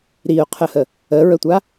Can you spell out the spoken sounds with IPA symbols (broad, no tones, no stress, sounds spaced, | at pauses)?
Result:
ɾ i ʊ̯ qʰ ə h ə | ə ɹ ə tʷ a